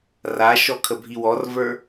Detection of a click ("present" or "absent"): absent